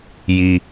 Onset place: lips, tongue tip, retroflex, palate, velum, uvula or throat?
palate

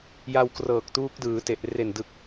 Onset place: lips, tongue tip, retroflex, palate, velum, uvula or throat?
palate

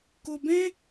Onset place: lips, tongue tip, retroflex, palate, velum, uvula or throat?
velum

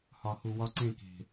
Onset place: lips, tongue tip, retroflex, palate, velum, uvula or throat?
throat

